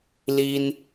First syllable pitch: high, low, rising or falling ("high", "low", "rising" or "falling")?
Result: high